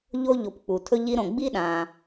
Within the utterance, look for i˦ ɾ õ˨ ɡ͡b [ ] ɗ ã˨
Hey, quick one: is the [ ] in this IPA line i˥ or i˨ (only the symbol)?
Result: i˥